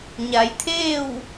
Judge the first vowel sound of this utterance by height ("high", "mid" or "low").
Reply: low